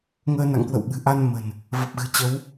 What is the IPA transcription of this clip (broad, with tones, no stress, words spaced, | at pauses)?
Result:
ŋəː˧na̰˧˨ŋkwə̰˧˨wɓɨ̤˨˩ ʔa˧n mə̤˨˩n | və˨˩p̚ɣɨ̤˨˩t͡ɕə˨˦w